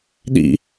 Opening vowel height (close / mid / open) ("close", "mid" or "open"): close